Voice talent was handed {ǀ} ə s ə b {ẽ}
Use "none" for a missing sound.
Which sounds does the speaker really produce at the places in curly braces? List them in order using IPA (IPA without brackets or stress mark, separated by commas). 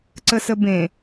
ǀ, ẽ